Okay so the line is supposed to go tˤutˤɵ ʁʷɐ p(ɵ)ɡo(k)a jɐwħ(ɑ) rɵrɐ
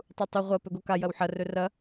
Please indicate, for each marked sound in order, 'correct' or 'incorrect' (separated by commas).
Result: correct, correct, incorrect